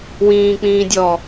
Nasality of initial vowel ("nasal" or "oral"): nasal